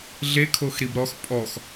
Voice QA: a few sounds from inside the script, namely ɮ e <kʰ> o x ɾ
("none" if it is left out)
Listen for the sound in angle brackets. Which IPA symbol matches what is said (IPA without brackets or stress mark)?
kʰ